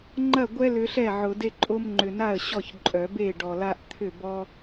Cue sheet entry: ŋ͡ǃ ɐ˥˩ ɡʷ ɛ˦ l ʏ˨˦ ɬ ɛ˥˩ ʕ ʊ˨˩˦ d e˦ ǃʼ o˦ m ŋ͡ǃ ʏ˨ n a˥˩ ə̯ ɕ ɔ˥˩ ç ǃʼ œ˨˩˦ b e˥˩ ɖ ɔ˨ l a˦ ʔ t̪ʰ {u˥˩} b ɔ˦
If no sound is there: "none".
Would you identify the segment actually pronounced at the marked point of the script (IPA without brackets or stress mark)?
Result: ʏ˥˩